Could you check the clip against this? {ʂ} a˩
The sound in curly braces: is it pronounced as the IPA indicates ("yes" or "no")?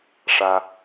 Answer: yes